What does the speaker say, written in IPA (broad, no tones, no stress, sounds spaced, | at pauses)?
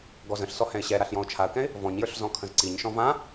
ɡ ɔ z ə̃ ɬ s ɔ h ɛ̃ ɪ̯ ɕ ɛ ɾ a ɬ j ɔ̃ ʊ̯ t͡ʃʰ a ə̯ k ɛ̃ ɪ̯ | v ɔ̃ ɲ j ə˞ ɬ z ɔ̃ kʰ ə̃ z ǀ i ɲ ʃ ɔ̃ v ã